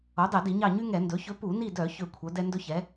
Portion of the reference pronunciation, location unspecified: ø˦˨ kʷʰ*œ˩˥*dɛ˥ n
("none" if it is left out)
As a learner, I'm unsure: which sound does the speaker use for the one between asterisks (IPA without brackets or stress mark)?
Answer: œ˩˥